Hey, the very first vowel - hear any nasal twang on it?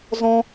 yes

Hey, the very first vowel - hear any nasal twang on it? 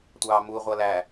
no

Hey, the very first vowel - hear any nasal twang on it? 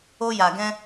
no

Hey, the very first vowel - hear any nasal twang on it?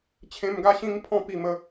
yes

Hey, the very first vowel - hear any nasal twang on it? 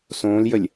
yes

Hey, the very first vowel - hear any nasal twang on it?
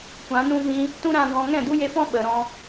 yes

